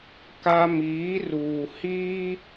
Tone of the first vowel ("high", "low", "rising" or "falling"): high